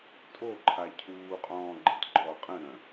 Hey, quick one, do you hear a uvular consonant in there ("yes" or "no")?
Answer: yes